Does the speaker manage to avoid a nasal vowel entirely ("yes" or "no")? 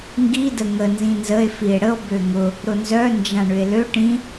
no